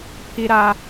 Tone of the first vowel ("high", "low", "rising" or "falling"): high